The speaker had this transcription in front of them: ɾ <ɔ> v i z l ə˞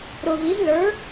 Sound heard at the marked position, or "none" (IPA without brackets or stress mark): ʊ